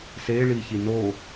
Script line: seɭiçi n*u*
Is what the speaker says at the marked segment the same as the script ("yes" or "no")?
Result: no